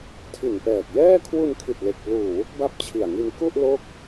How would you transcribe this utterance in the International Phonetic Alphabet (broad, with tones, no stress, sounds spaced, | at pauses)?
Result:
tʰ i˨˩ n p ɛː˨˩ k̚ j ɛː˥˩ kʰ w u˧ n kʰ i˨˩ t̚ l e˨˩ k̚ p l uː˨˩ w u˦˥ k̚ b a˥˩ p̚ t͡ɕʰ i˨˩ a̯ ŋ i˧ n k u˥˩ ʔ l o˥˩ k̚